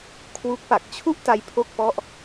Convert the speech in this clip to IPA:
kʰwu˦˥k̚pa˨˩k̚ t͡ɕʰu˥˩ʔta˧j pʰo˥˩k̚pɔ˥˩ʔ

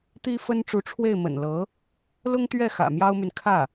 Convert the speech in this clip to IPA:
t̪i˥fə˥n ʈ͡ʂu˧˥ʈ͡ʂʰwe˥˩ɪ̯ mə̰˨˩nlɤ˧˥ | lʊ˥ŋt̪ɥɛ˥˩ xä̰˨˩mjɑ˥ʊ̯my˨n kʰä˥˩

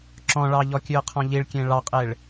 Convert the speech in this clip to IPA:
ǁɔ̃ɭɑʎɔ kʲʉə̯qʰɔ̃ʎiɭkʲẽ ɭɑqʼeɭ

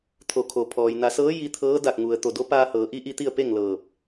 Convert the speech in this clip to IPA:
t̪ʰo˩˧kʰo˩pʰɔː˩j na˩˧sɤː˧˥ ji˧t̪ʰɤː˧˥ da˧˩k̚ŋu˩ə̯ t̪o˧˩do˧˥ paː˧hɤː˩˧ ʔi˧˥ʔi˧ t̪i˥˨ə̯pe˥˨ŋlɤː˧˩p̚

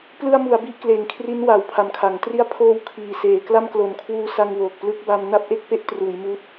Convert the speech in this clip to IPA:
plɯ˧a̯mu˩˦a̯ bi˥˩ʔkleː˨˩ŋkʰri˦˥n wa˨˩wpʰa˨˩mkʰa˩˦ŋ tri˧a̯pʰoː˧w kʰiː˨˩seː˨˩ kla˥˩mklo˨˩nkʰwuː˧ sa˧ŋwoː˨˩k̚ plɯ˦˥k̚ba˧m na˥˩p̚ʔe˥˩k̚pe˦˥ʔtruː˩˦j muː˦˥t̚

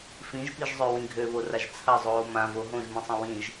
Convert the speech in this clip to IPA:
fĩʒpiʒzˤøwĩ ɡʱøβoraʒ t͡sʰɐzˤoː mãvo ɦõʒmĩsˤə̃ wĩʒ

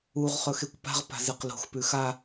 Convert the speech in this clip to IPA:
uʁ χɵxekʷpa̤ʁ pa̤zɨqlo̤x pʉxa

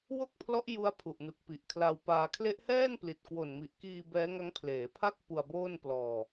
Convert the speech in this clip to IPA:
wo˥˩k̚pʰlɔ˦˥ʔ ju˦˥a̯pʰu˨˩ʔnu˨˩k̚ pi˨˩ʔ kʰla˧wpaː˧ kʰle˦˥ʔhɛː˥˩npli˨˩t̚ kwo˨˩nmi˨˩ʔkiː˧ bɛː˦˥ŋa˦˥ŋpʰleː˩˦pʰa˥˩k̚ pu˧a̯boː˥˩n plɔː˧

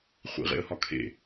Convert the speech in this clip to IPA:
χʷḭʁḛə̯hɒ kʰḛ

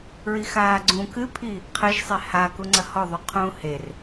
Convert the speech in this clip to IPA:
ɹixaːɡ͡ǀũ kɨpʰi | qʰɘʒsˤe hakuŋ͡ǀɐ hɔðˤu qʰũːher

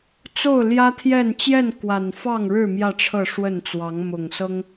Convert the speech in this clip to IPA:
t͡so˥˨ʊ̯ljä˦t̪ʰjɛ˥˨n t͡ɕjɛ˥˨nkwa˨˩nfɑ˥˨ŋ ɻɻ̩˥˨ mjä˥˨ʈ͡ʂʰɤ˥˨ʂwə˥˨nt͡swɑ˨˦ŋ mʊ˨˩ŋsɤ˦ŋ

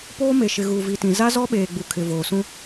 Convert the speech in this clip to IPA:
poː˦ me˨ʃɪ˨ ɣuː˨vi˨tĩ˨ za˦ zɔ˦ɓeː˨ɡ͡bu˨ kʰɪ˨voː˨sũ˦

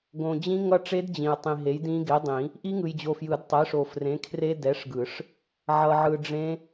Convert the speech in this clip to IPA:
ɡõ˨d͡ʑĩ˦˥ ŋʌ˦˥ʈ͡ʂe˦˥d d͡ʑĩ˨ə̯ tˤĩ˨ɦe˨˥jdĩ˦˥ ɡe˨˥dˤĩ˨˩˦ | ʔi˦˥ŋɯ˨jd͡ʑo˨fjɯ˨˩˦d tˤɛ˨˥ʂo˨frẽ˨˥kʰre˦˥ dɛ˨˥ʂɡɯ˨˩˦ʂ | ʕʌ˨ʕɯ˨ ɖ͡ʐẽ˦˥

